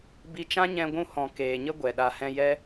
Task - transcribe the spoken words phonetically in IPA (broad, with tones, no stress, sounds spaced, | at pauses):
b i˧ t͡ʃ ã˦ ɲ ɛ̃˧ ɡʷ ũ˧ h ɔ̃˨ k eː˨ ɲ ə˦ ɡʷ ɛ˨ ɗ a˨ h ɛ̃˧ j ɛ˦